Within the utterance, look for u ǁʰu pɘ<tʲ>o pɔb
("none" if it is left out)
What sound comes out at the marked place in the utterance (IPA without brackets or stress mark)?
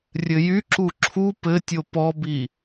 tʲ